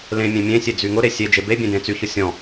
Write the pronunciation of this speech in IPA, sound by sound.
l ẽ mʲ ẽ mʲ ẽ sʲ e d͡z y ŋ ʊ ɾ e sʲ e d͡ʒ e b e bʲ ẽ d ẽ t͡s y ç ʊ sʲ ɔ̃

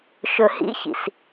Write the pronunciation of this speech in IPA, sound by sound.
ʃ ɵ h ḭ ç ḭ s

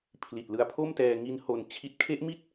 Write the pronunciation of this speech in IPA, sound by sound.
pʰ l i˨˩ t̚ l ɯ˧ a̯ pʰ o˥˩ m t ɛː˧ ŋ i˦˥ n h o˧ n t͡ɕʰ i˦˥ t̚ kʰ e˦˥ ʔ m i˥˩ t̚

